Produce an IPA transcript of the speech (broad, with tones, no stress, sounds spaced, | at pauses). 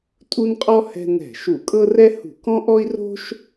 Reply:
tʼ u˥ n qʼ ɔ˥ h ɛ̤˥ n ɛ̤˧˩˧ ʃ u˧˩˧ kʼ ɤ˥ r ɛ˥ h ṳ˧˩˧ k ɔ̃˥ ʔ ɔ˥ i̯ r o̤˥ ʃ